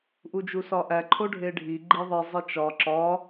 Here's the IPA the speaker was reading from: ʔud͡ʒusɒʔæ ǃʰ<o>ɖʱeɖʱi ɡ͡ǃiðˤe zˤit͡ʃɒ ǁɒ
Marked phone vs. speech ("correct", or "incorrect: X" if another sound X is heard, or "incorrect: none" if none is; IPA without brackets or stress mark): correct